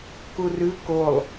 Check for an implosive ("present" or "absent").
absent